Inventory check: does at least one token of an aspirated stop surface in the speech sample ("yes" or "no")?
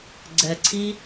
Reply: yes